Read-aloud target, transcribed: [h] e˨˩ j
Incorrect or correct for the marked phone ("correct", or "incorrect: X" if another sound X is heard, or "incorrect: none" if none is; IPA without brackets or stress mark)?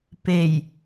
incorrect: p